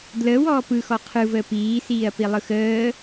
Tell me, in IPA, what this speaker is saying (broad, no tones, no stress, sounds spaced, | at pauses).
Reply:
d l əː w ɔː p ɯ x ɔ qʰ ɯ v əː p iː s iː ɐ̯ p i lˠ ɯ x əː